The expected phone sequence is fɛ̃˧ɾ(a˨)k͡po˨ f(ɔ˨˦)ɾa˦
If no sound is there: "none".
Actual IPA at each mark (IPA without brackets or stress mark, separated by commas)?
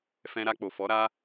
a˧, ɔ˨˦